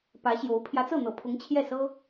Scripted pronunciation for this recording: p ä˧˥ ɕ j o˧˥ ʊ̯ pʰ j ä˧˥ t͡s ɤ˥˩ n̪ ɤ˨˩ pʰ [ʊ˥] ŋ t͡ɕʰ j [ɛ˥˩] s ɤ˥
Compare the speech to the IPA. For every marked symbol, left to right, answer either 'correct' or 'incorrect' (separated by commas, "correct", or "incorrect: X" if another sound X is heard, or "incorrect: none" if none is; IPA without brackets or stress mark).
incorrect: ʊ˧˥, correct